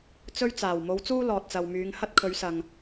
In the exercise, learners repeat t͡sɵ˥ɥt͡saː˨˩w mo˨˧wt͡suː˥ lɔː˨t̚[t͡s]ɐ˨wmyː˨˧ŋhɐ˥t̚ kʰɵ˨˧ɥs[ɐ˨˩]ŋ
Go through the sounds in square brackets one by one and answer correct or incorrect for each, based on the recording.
correct, incorrect: ɐ˨

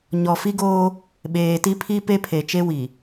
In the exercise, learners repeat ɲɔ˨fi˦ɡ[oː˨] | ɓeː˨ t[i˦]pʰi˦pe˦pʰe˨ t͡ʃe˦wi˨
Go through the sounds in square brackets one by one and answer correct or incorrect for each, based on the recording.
incorrect: oː˦, correct

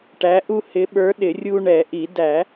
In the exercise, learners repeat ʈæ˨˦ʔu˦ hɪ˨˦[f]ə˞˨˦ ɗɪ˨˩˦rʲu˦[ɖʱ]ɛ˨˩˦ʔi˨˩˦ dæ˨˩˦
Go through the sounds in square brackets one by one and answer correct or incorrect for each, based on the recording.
incorrect: ɓ, incorrect: ɳ

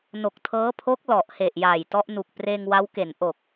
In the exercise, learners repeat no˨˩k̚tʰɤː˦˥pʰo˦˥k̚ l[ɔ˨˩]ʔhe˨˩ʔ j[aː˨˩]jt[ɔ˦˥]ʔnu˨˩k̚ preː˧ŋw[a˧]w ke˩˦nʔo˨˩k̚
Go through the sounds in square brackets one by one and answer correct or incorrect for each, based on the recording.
correct, correct, correct, incorrect: a˦˥

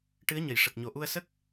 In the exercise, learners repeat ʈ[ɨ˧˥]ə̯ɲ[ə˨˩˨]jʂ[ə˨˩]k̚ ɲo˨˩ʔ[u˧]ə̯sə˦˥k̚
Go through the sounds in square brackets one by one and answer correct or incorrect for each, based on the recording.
correct, correct, correct, correct

